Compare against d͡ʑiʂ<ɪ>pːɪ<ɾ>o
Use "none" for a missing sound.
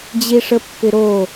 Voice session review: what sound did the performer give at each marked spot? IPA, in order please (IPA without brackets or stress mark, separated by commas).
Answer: ə, ɾ